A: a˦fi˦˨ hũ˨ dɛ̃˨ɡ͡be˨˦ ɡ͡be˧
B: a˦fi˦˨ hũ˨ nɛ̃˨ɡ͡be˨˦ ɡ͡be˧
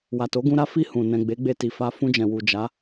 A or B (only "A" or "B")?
B